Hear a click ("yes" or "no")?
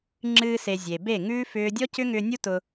yes